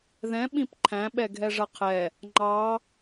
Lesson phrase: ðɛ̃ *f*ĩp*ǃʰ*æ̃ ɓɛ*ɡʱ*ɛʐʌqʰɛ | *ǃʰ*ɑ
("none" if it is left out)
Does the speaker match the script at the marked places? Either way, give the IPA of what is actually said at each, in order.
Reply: ɓ, ǃʰ, ɡʱ, ŋ͡ǃ

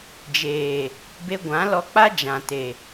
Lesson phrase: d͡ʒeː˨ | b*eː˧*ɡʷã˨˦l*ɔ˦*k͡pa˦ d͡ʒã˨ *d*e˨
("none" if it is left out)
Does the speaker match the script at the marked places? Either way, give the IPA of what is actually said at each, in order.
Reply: e˧, ɔ˧, t

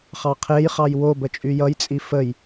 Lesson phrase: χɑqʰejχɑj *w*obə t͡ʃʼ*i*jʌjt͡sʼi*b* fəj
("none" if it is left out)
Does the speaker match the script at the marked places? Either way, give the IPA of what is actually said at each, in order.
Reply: w, y, none

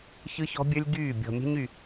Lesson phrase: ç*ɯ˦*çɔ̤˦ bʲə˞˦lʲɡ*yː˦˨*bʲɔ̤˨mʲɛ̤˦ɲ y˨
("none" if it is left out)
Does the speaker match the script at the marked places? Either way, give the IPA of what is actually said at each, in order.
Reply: ɯ˦, yː˦˨

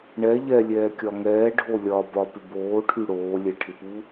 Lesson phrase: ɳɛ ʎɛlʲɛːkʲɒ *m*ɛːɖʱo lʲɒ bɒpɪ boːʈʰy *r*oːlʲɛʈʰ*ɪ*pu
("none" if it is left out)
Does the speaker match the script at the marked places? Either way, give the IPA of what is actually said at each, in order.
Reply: ŋ, ɽ, ɪ

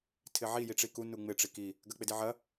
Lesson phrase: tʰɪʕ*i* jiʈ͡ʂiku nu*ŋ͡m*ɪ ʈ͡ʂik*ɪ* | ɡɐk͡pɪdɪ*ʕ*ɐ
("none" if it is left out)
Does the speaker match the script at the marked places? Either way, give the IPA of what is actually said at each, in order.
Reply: i, ŋ͡m, i, ʕ

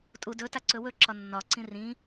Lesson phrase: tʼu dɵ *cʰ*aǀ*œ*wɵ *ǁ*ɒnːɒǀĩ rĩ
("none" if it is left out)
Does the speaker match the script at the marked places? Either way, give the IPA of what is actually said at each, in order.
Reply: t, ɵ, ǁ

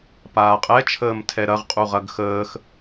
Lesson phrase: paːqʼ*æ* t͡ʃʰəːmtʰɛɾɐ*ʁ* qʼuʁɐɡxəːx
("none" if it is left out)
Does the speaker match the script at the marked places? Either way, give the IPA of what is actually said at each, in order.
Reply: ɛ, ʁ

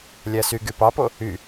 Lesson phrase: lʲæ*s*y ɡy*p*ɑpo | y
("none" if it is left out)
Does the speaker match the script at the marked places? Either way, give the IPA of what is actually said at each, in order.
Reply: s, p

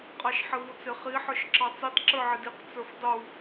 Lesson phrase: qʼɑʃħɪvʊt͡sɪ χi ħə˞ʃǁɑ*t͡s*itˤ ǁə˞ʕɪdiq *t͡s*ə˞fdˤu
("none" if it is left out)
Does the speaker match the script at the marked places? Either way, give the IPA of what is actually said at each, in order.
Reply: t͡s, t͡s

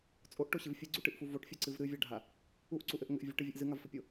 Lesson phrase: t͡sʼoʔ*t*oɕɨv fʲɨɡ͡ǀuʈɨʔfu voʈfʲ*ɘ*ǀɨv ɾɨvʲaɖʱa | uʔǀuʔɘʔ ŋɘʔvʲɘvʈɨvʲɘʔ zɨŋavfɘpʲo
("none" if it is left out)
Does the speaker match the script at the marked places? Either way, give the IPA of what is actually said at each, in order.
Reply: ʈ, ɘ

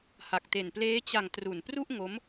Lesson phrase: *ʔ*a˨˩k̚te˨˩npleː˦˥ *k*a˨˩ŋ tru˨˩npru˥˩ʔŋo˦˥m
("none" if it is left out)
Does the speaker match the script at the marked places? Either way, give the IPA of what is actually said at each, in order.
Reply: h, t͡ɕ

